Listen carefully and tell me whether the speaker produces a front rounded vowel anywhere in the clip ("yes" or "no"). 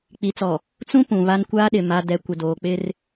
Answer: no